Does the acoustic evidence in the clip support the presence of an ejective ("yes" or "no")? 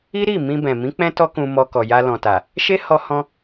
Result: no